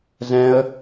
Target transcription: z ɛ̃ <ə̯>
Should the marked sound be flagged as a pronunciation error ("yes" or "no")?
no